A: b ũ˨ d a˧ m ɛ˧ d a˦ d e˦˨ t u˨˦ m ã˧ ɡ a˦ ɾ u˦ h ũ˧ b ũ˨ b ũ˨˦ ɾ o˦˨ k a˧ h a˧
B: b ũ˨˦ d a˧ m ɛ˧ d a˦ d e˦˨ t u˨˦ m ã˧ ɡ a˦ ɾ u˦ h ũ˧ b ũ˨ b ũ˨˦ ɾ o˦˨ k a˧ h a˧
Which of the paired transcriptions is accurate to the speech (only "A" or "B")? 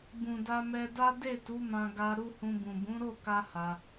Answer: A